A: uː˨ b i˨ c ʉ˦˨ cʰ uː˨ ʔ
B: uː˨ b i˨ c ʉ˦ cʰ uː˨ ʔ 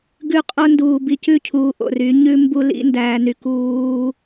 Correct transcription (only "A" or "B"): A